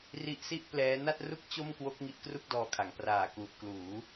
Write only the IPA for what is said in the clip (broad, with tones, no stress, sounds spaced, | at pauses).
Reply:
r i˦˥ ʔ s i˥˩ ʔ p l ɛː˦˥ n a˥˩ t̚ r u˥˩ k̚ t͡ɕ o˥˩ m k w o˦˥ k̚ ŋ i˦˥ ʔ k r u˥˩ k̚ d ɔː˧ kʰ a˩˦ ŋ p r aː˨˩ k u˨˩ ʔ k l uː˩˦